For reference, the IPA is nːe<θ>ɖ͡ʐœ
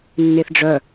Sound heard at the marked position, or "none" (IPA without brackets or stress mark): θ